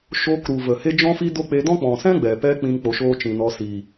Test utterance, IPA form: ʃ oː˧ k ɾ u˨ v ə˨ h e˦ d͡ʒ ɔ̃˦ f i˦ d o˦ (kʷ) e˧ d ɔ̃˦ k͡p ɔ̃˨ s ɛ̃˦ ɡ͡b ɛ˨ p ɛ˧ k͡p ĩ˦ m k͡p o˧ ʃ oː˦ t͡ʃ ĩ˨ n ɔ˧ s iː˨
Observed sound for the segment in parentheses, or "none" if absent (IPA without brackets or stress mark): k͡p